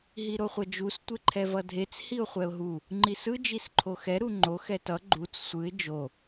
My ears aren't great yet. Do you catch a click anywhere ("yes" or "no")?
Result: yes